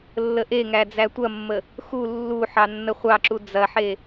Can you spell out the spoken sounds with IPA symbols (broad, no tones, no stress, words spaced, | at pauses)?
lːəʔeŋæ d͡zætʷɐmːə | xu lːu ħɑnːəχʷɑǁu d͡zɐħe